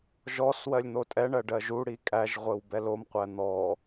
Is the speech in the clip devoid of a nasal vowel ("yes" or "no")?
yes